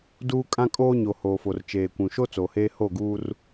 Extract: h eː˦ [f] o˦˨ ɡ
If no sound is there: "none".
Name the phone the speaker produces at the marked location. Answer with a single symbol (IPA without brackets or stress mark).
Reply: h